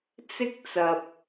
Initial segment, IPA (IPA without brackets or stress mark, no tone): t͡s